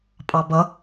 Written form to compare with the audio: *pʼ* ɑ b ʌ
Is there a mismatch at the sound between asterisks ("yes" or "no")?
no